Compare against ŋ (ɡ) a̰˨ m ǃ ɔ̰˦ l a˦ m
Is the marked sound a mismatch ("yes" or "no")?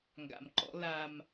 no